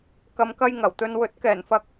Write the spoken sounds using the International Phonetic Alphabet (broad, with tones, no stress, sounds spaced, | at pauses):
k ɐ˨ m k ɐ˧ j ŋ ɐ˨˩ w t̪ ɵ˧ n w ɵ˨˥ t̚ k ɛː˨˩ n f ɐ˧ k̚